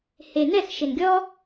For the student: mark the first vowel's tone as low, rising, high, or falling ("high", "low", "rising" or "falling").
low